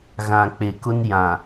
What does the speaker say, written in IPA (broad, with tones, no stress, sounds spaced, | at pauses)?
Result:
ɣ ã˨ k͡p e˨ k ʊ˦ n j ã˨